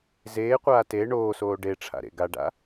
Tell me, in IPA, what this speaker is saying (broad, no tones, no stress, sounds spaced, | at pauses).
z eː qʷ aː t e ɳ oː s oː ɖ e ʈ͡ʂʰ a̰ ɾ ḛ ɡ a ɖ a̰